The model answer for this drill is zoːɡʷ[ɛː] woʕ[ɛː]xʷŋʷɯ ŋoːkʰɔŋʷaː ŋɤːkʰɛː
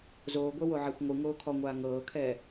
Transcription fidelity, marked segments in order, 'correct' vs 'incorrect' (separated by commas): incorrect, incorrect